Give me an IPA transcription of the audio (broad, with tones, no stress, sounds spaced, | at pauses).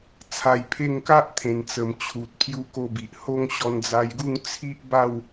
t͡sʰ a˧ j pʰ e˥˧ ŋ k a˦ ʔ t̪ʰ ẽ˨˩ n t͡s ə˨˩ m t͡ɕʰ u˨ t̚ pʰ j u˧ k o˧ b i˨ ʔ h o˦ ŋ ɕ ɔ˧ n d͡z a˧ j ɡ u˥˧ ŋ t͡sʰ i˦ ʔ b a˥˧ w